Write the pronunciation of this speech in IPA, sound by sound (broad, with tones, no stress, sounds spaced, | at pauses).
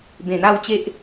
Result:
b ẽ˨˩ n̪ a˥˧ w t͡ɕ e˦ ʔ